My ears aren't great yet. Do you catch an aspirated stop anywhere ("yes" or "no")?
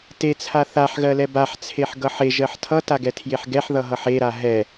yes